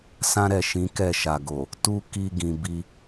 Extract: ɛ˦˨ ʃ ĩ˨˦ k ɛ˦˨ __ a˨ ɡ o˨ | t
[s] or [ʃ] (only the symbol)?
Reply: ʃ